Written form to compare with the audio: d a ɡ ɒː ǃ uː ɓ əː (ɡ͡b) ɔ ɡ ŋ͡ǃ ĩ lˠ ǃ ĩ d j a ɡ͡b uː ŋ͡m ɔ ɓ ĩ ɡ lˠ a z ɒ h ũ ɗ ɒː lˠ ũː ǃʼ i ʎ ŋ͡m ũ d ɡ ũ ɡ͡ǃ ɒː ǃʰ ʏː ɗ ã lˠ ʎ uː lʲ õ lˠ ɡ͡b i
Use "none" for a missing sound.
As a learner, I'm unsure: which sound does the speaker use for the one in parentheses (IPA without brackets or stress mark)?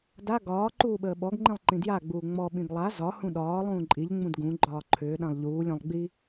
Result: ɓ